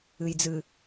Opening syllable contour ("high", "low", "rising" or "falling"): low